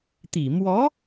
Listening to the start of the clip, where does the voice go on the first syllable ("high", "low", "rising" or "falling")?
low